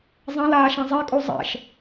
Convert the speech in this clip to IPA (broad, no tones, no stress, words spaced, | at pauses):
zˤɛ̃laːʃã zˤɛkʼu zˤɛ̰ʃ